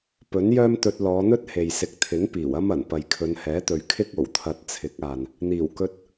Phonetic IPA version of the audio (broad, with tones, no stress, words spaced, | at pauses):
pɵ˨˥njœː˥mt̪ɵ˧t̚ lɔː˨˧n̪ɵ˥t̚ he˨jsɪ˧k̚ t̪ʰɪ˨˥ŋpiː˨˩wɐ˥mɐ˨˩n pɐ˨jkʰɵ˨˧nhɛː˨˥t̪ɵ˨ɥ kʰɪ˥k̚ o˨˩wt̪ʰɐ˧t̚t͡sʰɪ˨˥k̚aː˨n | n̪iː˨˩wkɵ˧t̚